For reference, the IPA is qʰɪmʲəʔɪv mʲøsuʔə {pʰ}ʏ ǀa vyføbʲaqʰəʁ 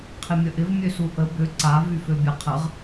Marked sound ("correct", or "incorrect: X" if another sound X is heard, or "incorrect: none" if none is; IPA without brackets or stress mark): incorrect: b